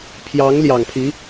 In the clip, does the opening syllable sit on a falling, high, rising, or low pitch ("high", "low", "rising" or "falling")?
rising